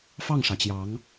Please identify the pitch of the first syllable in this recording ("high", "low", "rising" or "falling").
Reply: falling